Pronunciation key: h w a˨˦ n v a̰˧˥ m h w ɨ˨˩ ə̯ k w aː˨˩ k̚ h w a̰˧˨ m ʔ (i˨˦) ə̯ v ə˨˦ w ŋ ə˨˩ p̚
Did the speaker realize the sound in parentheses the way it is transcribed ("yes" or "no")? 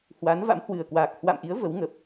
yes